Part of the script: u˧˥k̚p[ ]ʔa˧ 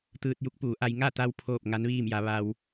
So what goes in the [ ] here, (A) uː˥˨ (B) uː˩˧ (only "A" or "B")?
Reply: B